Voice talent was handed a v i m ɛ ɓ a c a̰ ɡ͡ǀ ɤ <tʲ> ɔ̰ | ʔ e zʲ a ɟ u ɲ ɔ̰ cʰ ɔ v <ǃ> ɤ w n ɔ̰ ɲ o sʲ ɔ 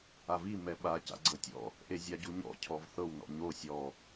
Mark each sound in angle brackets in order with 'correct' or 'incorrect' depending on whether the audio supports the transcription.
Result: correct, incorrect

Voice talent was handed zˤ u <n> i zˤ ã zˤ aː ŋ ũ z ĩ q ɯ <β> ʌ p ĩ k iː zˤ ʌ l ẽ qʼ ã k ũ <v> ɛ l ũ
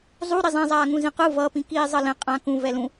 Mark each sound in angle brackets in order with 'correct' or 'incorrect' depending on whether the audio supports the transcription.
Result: incorrect, incorrect, correct

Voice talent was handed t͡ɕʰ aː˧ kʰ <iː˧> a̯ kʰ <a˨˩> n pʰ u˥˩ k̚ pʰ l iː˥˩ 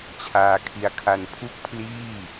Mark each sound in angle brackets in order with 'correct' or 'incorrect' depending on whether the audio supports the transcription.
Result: incorrect, incorrect

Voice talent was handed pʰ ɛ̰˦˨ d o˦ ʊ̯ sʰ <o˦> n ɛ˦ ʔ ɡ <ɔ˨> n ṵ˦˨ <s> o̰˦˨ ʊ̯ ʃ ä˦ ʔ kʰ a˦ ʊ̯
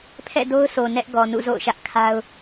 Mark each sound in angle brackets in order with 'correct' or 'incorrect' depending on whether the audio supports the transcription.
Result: incorrect, correct, incorrect

